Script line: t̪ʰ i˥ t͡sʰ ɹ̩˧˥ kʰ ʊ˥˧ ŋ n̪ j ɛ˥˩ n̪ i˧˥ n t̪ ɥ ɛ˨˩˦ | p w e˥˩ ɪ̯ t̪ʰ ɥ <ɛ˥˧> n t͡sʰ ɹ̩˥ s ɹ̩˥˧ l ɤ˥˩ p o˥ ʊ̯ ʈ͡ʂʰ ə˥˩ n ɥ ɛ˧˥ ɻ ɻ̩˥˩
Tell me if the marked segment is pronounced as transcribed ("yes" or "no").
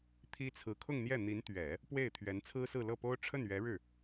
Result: no